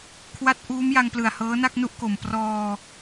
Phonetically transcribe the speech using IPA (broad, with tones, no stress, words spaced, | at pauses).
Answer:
kʰwa˦˥t̚ʔuː˦˥mja˧ŋplɯ˨˩a̯ hɤː˦˥na˥˩k̚nu˥˩ʔko˨˩m prɔː˧